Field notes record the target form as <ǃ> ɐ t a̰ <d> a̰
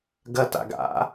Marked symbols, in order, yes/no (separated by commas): no, no